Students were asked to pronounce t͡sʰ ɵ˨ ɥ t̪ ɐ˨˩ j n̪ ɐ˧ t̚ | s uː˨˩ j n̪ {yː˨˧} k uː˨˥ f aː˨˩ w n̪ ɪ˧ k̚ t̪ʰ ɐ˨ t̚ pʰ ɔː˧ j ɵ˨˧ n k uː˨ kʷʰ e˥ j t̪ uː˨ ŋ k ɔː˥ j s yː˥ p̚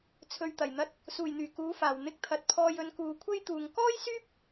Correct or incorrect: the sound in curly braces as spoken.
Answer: incorrect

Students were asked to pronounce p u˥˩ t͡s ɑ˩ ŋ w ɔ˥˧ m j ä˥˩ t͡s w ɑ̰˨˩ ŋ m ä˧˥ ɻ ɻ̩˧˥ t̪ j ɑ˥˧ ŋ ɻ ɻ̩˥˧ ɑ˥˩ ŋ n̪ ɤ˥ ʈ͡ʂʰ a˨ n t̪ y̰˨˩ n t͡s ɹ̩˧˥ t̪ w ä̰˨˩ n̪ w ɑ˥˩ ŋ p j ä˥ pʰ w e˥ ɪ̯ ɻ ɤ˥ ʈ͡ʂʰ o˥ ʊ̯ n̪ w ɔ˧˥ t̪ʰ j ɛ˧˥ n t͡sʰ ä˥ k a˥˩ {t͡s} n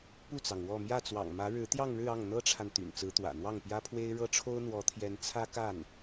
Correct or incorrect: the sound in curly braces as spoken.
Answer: incorrect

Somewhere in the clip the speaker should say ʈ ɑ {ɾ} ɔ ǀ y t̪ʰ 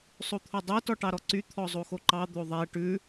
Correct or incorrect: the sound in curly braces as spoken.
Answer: correct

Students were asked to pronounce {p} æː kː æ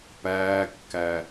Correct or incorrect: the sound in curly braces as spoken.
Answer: correct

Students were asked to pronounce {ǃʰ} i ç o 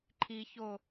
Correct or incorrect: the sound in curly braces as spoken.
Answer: correct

